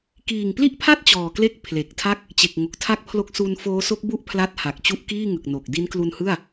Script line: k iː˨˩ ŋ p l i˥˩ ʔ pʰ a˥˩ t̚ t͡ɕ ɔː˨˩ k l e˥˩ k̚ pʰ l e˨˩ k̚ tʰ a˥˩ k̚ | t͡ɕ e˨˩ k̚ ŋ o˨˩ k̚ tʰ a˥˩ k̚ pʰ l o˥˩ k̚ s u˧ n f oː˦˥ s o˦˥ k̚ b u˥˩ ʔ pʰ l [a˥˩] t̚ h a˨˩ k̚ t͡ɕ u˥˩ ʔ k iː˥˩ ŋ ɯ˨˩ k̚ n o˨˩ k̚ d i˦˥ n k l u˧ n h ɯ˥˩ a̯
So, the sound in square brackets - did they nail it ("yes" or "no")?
no